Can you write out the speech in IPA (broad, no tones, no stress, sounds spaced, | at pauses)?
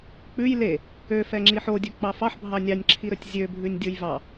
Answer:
k͡p ʉ j l e | ø f ɛ ŋ͡ǁ i ħ o dʲ ɵ k͡p ɑ f ɑ ħ bʱ ɑ nʲ ɑ nʲ ǁʰ i ɾ ɵ tʲ zʲ ø bʱ ʉ nʲ dʲ o j v ɑ